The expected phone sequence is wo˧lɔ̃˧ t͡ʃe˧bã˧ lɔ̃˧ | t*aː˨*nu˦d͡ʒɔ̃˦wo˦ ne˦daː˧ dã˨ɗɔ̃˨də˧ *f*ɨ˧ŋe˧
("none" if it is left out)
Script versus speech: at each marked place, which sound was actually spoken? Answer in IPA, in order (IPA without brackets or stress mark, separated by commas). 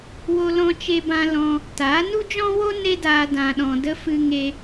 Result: aː˨˦, f